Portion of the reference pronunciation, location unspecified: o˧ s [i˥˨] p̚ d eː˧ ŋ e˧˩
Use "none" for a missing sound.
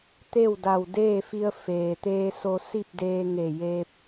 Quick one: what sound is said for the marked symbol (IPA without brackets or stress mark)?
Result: i˥˨